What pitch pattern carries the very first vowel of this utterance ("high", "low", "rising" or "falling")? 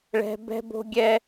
high